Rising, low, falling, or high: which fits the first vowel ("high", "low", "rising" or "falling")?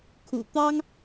low